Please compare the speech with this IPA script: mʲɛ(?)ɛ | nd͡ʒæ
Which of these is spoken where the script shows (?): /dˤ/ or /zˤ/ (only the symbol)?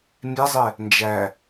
zˤ